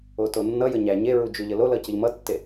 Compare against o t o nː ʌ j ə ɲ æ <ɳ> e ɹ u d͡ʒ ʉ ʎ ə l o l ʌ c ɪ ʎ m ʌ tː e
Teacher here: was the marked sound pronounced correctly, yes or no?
no